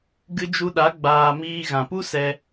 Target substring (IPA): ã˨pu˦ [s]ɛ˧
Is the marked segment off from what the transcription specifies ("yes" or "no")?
no